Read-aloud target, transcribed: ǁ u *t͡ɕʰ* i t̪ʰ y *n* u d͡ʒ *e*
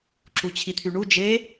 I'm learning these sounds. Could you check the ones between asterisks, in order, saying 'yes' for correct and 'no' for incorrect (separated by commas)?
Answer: yes, no, yes